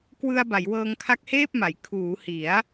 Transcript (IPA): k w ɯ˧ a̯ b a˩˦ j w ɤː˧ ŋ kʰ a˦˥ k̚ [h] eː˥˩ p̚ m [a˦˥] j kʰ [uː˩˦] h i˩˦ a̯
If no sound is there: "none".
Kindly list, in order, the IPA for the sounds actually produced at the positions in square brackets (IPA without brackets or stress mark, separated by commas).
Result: h, a˩˦, uː˩˦